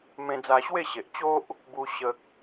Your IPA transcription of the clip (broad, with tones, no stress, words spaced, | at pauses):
mẽ˧d͡za˧ɕwe˥˧ɕe˨ʔ t͡ɕo˦ʔ | bu˦ɕə˦k̚